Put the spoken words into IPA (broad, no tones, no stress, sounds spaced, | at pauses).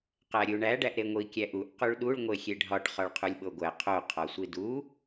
q æ ɾʲ u ɳ æ ɖ æ ʔ ɾ e ŋʷ i kʲ æ ʔ u ʔ q u ɭ ɗ u ɭ ŋʷ e xʲ e ɖʱ ɒ ʈ χ ɒ ɭ qʰ u lʲ ɓ o ɡʷ æ qʰ o qʰ ɒ sʷ i d u